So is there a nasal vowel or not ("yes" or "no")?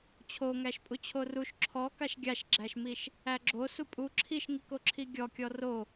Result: no